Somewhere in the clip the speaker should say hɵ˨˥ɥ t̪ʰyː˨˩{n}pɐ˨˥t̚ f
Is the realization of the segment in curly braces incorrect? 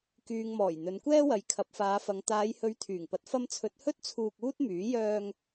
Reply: yes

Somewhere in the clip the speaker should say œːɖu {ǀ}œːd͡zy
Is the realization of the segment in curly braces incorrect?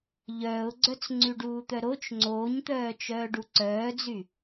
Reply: no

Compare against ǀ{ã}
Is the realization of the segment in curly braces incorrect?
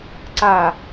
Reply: yes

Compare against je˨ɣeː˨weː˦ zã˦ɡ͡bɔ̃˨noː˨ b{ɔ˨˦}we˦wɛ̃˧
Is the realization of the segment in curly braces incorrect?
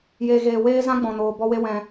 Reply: yes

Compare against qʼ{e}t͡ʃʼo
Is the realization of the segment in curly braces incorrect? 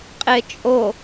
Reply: no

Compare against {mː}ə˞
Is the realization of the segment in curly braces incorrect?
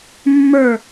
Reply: no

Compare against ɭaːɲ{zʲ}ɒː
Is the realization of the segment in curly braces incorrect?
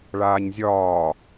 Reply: no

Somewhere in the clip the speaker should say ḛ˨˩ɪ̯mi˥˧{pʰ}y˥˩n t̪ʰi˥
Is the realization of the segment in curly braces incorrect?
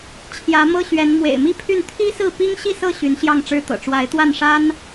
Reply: no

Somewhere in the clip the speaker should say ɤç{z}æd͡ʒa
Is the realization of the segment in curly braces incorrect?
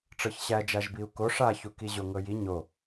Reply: yes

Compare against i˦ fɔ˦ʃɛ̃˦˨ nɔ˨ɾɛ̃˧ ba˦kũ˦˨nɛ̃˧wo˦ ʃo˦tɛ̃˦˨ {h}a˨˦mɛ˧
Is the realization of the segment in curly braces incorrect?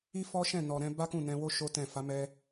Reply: yes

